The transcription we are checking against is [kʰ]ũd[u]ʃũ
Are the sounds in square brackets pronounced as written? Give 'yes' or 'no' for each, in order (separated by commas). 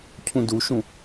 no, yes